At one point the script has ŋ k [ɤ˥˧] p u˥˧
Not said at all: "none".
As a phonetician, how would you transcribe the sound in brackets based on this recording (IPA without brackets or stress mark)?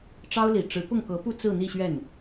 ɤ˧˥